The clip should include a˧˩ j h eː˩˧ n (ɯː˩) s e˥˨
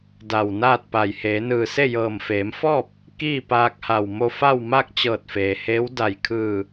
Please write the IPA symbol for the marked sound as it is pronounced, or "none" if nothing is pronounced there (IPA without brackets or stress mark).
ɯː˧˩